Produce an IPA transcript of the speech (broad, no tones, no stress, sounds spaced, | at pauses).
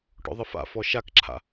ʈ ɔ̰ ðˤ ə f a̰ f ɔ ʃ a k ǁʰ a̰